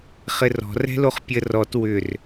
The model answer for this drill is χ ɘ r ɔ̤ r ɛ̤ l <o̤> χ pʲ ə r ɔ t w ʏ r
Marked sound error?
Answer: yes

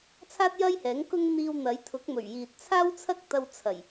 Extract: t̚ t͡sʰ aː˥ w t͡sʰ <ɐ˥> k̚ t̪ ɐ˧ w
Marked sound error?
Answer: no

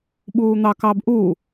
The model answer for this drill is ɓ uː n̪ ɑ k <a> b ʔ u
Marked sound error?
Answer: yes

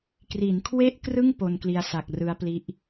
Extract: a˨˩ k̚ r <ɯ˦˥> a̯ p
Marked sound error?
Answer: no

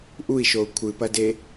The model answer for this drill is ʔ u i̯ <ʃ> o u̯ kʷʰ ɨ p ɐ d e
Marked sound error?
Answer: no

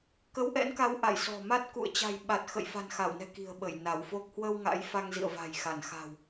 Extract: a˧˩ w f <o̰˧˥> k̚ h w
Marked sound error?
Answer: yes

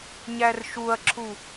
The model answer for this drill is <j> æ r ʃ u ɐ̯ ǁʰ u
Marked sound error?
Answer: yes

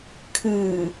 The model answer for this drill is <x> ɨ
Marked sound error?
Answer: yes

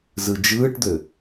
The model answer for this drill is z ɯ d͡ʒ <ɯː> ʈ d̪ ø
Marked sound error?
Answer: no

